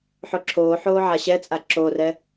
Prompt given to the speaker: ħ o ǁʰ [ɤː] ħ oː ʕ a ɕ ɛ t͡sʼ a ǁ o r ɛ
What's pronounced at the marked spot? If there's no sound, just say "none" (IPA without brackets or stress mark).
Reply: oː